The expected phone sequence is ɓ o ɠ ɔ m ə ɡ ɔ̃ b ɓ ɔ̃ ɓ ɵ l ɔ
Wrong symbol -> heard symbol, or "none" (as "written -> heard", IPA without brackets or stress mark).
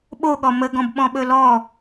none